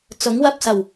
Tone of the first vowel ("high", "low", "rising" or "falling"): rising